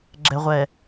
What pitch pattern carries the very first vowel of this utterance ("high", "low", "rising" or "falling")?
low